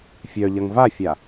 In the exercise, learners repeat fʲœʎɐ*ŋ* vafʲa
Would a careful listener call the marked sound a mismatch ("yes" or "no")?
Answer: no